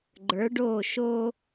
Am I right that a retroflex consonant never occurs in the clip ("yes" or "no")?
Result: no